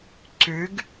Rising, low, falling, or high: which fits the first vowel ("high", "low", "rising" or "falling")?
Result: rising